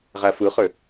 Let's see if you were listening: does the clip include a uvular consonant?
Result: yes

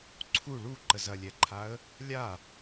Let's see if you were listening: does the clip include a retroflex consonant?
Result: yes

